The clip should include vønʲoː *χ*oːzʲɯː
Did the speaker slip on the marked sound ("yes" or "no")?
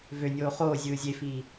no